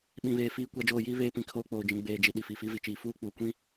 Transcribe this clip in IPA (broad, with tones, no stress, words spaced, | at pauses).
ɓĩ˨βeː˨fiː˦ kʷa˨˦d͡ʒoː˨jiː˦ βeː˦pĩ˨kʰoː˦k͡poː˨ d͡ʒĩ˨ ɡ͡beː˨d͡ʒi˨ ɗi˨fi˨fi˦ vi˨t͡ʃiː˨ fuː˦k͡puː˨kʷĩ˦